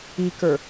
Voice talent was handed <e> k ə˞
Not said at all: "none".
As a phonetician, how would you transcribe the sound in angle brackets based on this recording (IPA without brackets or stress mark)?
i